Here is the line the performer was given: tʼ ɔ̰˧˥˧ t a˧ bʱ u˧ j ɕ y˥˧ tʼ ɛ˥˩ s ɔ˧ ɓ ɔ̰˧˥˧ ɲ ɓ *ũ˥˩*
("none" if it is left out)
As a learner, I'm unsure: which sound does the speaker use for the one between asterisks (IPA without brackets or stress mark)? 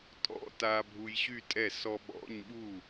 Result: u˥˩